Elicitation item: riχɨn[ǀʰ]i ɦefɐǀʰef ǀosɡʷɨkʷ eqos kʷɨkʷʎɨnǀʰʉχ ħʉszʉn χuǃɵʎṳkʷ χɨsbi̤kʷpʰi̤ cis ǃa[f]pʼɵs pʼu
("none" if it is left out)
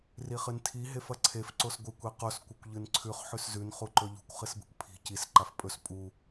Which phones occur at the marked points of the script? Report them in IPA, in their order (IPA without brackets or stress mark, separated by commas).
tʰ, f